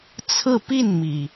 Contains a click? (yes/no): no